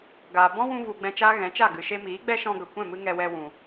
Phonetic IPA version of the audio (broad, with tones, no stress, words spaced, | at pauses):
ɡaː˨ bɔ̃˦wũ˧vu˨ ɡ͡bɛ̃˧t͡ʃaː˦ɣɛ̃˨˦t͡ʃa˦˨ ɡɨ˨ʃe˧miː˨˦ ɡ͡bɛ˦ʃɔ̃˧ɡə˨kʷɛ̃˦˨ mɨ˦ŋɛ˧wɛ˧wũ˨